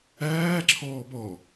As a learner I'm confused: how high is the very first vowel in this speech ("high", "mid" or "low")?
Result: low